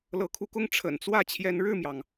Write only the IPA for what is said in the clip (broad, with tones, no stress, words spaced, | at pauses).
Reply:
lɤ˨˦kʰu˨˦kʊ˦ŋ ʈ͡ʂʰə̰˨˩nt͡swä˥˨ t͡ɕʰjɛ˨˦nɻɻ̩˥˨mjɑ˩ŋ